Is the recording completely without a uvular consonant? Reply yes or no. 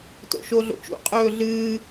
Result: no